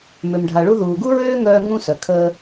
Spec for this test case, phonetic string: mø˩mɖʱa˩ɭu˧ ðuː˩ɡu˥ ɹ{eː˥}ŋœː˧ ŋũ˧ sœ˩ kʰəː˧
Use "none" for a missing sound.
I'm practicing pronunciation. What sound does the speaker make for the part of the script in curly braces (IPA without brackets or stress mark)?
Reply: øː˥